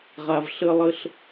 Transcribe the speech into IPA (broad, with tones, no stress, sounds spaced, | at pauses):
ʁ a˨ v ɬ ə˧ lˠ ə˧ ɬ